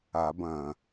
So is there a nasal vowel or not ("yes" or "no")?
yes